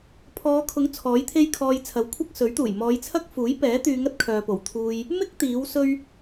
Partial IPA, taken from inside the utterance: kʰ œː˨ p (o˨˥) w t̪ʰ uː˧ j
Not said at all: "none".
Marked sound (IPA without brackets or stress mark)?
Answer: o˨˩